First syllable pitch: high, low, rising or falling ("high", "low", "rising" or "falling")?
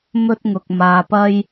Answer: high